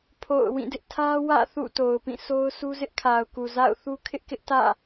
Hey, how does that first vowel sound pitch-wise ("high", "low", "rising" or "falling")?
falling